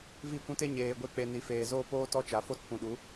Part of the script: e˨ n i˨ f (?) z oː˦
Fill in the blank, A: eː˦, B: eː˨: B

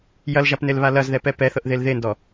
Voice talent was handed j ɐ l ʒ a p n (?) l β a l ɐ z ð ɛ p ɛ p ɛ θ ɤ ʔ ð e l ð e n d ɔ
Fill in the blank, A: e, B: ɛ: A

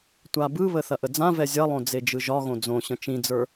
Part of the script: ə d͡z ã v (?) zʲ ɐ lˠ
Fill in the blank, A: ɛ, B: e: A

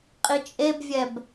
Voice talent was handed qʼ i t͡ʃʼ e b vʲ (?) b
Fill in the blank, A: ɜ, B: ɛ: B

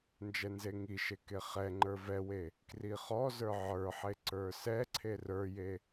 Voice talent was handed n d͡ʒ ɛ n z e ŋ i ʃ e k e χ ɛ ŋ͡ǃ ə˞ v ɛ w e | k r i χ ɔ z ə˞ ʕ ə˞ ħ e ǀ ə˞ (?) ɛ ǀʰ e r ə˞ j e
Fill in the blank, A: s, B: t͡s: A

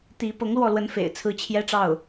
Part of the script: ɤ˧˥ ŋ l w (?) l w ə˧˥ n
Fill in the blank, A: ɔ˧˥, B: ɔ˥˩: B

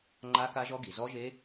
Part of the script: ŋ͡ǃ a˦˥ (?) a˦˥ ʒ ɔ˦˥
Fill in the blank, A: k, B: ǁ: A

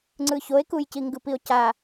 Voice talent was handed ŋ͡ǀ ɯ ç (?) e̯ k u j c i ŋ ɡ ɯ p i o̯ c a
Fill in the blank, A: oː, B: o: B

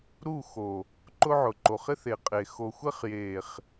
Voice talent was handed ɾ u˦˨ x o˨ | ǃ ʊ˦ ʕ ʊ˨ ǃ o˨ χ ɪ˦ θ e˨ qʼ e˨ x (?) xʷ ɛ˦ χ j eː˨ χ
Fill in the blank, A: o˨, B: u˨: A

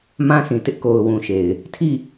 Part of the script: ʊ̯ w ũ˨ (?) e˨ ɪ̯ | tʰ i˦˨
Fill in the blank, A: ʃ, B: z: A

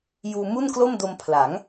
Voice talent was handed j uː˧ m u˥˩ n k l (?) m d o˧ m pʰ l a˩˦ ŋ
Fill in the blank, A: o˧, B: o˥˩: B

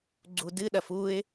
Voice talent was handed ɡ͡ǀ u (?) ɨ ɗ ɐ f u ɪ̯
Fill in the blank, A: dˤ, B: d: B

